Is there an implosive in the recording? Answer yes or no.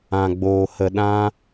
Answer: yes